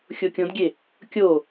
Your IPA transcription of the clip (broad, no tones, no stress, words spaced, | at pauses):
xʲokʲõdɡʲe | kʲo